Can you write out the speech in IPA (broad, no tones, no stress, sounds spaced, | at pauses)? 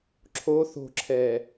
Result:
ǁʰ o θ o̤ ǁʰ ɛː